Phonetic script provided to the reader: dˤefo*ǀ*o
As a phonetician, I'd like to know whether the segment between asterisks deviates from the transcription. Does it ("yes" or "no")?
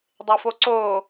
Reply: no